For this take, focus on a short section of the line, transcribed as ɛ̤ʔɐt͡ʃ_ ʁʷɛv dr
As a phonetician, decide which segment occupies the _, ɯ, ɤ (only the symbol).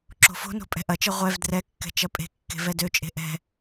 ɤ